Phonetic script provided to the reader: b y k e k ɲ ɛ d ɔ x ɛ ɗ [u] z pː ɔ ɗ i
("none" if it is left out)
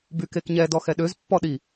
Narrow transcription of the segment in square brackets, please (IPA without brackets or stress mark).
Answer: ø